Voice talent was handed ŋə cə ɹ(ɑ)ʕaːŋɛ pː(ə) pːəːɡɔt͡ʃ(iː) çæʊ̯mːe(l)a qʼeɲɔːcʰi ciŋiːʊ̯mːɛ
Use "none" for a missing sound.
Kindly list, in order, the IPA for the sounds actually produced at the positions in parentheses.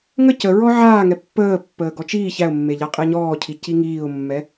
ɔ, əː, iː, ʎ

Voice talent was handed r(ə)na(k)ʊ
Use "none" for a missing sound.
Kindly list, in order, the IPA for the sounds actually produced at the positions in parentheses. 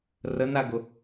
ə, ɡ

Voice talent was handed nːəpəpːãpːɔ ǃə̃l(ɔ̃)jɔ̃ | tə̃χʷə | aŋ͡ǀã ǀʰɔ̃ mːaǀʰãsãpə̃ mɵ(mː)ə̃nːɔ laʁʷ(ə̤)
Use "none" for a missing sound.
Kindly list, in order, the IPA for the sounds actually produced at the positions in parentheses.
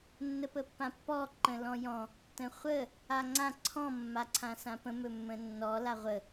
ɔ̃, mː, ə

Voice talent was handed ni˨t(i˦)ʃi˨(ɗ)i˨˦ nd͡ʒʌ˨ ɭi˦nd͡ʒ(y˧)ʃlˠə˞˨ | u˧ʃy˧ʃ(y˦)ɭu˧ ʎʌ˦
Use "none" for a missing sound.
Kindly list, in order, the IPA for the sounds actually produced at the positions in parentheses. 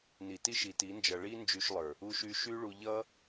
i˦, t, y˧, y˦

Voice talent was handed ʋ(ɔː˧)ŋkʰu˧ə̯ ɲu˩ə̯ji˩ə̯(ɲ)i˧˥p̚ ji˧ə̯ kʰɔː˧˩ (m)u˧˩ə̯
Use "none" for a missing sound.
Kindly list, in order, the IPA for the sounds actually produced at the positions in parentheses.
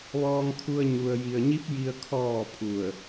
ɔː˧, ɲ, pʰ

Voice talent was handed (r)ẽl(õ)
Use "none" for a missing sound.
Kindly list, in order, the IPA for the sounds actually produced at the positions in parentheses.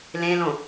l, õ

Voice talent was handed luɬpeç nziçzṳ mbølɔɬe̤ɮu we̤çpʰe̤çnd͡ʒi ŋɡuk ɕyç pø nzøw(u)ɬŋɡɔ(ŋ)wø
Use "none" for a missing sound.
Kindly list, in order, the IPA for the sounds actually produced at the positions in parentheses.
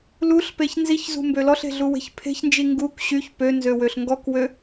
ø, k

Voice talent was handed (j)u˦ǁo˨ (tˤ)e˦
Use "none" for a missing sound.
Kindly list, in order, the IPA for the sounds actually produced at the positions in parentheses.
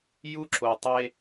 j, tˤ

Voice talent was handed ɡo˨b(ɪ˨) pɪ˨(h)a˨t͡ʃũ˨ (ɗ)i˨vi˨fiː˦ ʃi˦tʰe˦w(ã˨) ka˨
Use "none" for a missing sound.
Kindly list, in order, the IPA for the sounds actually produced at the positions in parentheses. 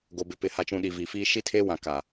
ɪ˨, h, ɗ, ã˨

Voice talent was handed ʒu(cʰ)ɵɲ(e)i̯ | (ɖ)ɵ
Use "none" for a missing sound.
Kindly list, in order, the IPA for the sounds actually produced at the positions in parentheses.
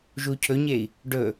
cʰ, e, ɖ

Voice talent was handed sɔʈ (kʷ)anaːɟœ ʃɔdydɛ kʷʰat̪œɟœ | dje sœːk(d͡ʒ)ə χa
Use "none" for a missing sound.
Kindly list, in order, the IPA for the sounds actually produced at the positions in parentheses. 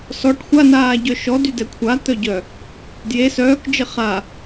xʷ, d͡ʒ

